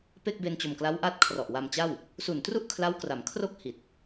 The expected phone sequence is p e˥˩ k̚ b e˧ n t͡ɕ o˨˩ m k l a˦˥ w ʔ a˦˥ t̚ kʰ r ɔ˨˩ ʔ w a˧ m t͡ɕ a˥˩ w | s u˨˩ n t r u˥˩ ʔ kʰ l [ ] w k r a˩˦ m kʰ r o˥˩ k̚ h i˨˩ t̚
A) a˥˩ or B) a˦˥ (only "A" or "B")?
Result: B